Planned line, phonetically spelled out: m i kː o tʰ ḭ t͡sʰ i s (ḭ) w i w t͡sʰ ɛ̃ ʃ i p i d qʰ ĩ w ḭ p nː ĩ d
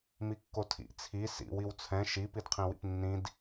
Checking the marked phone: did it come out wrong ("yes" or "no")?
no